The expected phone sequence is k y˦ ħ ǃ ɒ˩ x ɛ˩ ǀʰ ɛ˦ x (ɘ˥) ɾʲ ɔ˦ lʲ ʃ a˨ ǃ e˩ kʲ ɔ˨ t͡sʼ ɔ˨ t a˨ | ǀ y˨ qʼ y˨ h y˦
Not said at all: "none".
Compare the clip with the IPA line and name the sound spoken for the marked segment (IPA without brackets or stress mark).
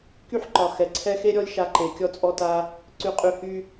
e˥